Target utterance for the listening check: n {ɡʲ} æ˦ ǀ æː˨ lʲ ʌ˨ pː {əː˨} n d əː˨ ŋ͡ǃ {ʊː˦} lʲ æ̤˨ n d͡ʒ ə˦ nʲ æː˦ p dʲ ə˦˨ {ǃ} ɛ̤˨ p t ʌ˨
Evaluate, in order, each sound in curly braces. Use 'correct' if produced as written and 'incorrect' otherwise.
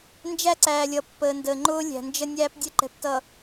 incorrect, correct, correct, correct

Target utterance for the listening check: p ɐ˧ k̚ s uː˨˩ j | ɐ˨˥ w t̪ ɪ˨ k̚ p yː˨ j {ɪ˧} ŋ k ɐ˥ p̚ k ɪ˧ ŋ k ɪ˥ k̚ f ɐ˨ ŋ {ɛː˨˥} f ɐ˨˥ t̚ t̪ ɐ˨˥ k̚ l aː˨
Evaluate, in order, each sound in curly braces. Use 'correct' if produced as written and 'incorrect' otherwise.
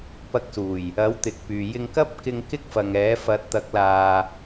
correct, correct

